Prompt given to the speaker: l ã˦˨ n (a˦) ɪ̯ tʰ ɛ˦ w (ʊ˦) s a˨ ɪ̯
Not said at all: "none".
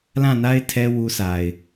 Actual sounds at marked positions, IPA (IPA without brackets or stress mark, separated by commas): a˦, u˦